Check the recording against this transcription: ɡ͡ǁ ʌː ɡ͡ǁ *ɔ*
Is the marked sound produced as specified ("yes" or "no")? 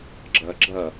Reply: no